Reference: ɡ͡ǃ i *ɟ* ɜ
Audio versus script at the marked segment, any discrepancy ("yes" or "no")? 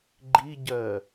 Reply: no